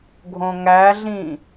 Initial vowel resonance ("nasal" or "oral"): nasal